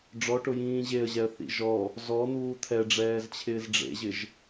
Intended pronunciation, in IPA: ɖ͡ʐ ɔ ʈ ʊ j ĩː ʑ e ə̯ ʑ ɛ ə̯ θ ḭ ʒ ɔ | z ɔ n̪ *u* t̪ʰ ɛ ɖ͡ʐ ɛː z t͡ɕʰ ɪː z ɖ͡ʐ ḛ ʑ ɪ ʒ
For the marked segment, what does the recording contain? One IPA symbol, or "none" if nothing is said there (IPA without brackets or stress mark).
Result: uː